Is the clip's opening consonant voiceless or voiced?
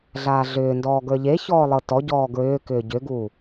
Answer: voiced